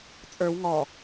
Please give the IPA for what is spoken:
t͡sʼə˞w ŋɔ

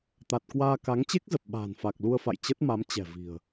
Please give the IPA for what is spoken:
t̪a˨˩t̚kwaː˧ka˨˦ŋ t͡ɕe˦˥k̚zə˨˩p̚ ɓa̤ː˨˩nfa˨˩k̚lu˧ə̯fa̰˧˨j t͡ɕə˦˥t̚ma˨˦m t͡ɕɛ̤˨˩ vi̤˨˩ə̯

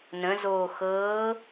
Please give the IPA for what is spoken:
nə̃zoː xɤː

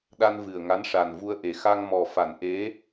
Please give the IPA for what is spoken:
ɗa˧nvɨ˨˩ə̯ŋa˧˥n ʂa˨˩nvu˧ə̯ʔe˨˩ xa˧ŋ mɔ˨˩fa˨˩˨nʔe˧˥

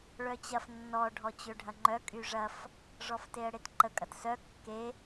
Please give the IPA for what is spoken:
ɭœt͡ɕɐf nːɔ ɖʱɔt͡ɕøɖʱɐŋ͡ǃœ kʼyʐɐf | ʐɔfteə̯ɽetǃə kʼɐtsœ kːe

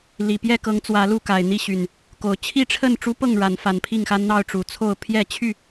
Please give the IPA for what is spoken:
li˨˩pjɛ˥˨ kɤ˨˦ŋt͡swä˨˦ lu˥˨ka˨˩ɪ̯n̪i˥˨ɕy˨˩n | ko˨˩ʊ̯ t͡ɕʰi˥˨ʈ͡ʂʰə˥˨n ʈ͡ʂu˦pɤ˥˨ŋ ɻa˨˦nfa˨˦npʰi˥˨ŋxa˦n n̪ɑ˥˨ʊ̯ʈ͡ʂu˨˦t͡sʰo˥˨ʊ̯ pʰjɛ˥˨t͡ɕʰy˥˨

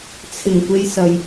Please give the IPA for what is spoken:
t͡sʰɪ˨˩ŋkʷe˧jsɐ˨j

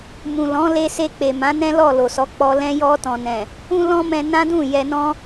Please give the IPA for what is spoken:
mũ˨lɔ̃˨˦ le˧se˧k͡pe˨ mã˨˦nɛ̃˦lɔ˦˨ lo˨sɔ˨˦k͡pɔ˧ lɛ̃˧jɔ˧tɔ̃˨nɛ̃˨ | ũ˦lɔ̃˦mɛ̃˧ nã˦dũ˦˨ jɛ˧nɔ̃˦

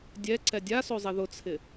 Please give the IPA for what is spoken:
dʲɛ ǀɛdʲaso zˤiðʊt͡sʰɪ

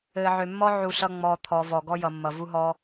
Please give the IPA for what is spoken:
ɘː˧ʕø˧mːɔ˦ ʕu˧ ɬʌ˦ ŋ͡mɔː˦t̪ʰɔː˦ vɔ˧ɡɔ˦jʌː˧mːʌ˧ vu˦ɦɔː˦

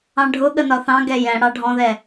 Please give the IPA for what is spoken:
ɑ̃ɖʱʊɠə nɒθɑ̃ɡɛ jɛ̃ɽɑ ɖʱɔ̃ðɛ

